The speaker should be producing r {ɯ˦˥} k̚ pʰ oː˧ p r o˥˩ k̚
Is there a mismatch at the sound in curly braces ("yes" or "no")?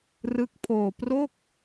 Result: no